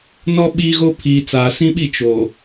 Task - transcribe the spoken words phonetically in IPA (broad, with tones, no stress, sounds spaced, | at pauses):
n ɔ˦ ɓ iː˦ ɣ o˦ pʰ iː˨ t͡s aː˨ s ĩ˦ ɓ i˦˨ t͡ʃ o˨